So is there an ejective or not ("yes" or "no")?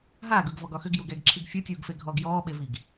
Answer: no